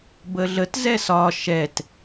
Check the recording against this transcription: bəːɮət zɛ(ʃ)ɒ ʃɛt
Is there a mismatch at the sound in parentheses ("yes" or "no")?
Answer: yes